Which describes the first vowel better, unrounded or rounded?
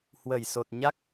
unrounded